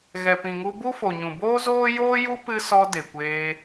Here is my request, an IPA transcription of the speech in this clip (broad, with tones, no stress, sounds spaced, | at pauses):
ɣ ɛ˨ p ĩ˨ ŋ u˧ b u˦ f o˨ ɲ ũ˨ b oː˦ z oː˦ j oː˦ j u˦ p ɨ˦ s ɔ˧ d e˨ kʷ eː˧